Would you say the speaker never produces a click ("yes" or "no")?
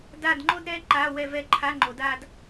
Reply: no